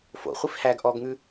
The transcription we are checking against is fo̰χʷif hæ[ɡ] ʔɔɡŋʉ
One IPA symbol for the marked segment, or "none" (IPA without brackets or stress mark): ɡ